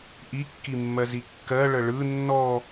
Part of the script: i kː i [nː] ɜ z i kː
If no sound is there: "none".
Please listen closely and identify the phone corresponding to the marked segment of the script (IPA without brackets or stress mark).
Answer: mː